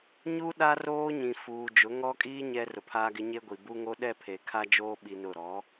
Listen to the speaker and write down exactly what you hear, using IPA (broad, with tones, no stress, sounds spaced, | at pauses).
ɲ u˦ ɗ a˦ r oː˦ ɲ ĩ˨ f uː˨ d͡ʒ ʊ˨˦ ŋ ɔ˦ kʼ iː˦ ɲ ɛ˦ r ʊ˨ pʰ aː˦ ɡ ɪ˦ ɲ e˦ ɡʷ i˨ b u˦ ŋ o˦ ɗ ɛ˦ pʰ e˨ kʰ a˦ d͡ʒ oː˦ ɓ i˦ n ʊ˦˨ ɾ ɔ˨˦